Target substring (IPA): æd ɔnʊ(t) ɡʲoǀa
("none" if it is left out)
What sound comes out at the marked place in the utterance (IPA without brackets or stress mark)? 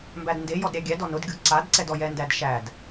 d